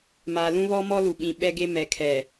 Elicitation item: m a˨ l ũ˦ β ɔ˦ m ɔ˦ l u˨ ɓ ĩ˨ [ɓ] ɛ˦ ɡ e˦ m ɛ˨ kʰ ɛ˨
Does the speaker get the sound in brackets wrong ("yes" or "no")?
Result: no